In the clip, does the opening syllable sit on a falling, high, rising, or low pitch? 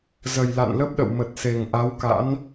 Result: low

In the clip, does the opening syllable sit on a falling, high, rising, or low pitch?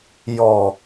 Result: low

